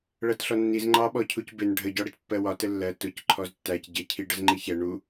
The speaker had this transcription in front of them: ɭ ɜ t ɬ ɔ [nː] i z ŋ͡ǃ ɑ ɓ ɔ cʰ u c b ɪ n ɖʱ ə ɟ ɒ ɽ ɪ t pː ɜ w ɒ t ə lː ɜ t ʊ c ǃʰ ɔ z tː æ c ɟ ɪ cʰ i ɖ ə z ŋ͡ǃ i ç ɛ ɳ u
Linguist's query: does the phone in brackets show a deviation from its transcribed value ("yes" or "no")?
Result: no